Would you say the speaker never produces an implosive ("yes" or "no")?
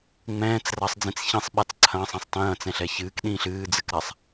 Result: no